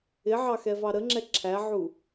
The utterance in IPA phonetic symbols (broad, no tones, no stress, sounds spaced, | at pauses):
ɪ ʕ ɑ x ɛ v ɑ ɾ ə ŋ͡ǁ ɛ ǁʰ æ ʕ u